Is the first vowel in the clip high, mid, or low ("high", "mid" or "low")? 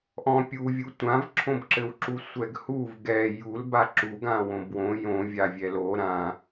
mid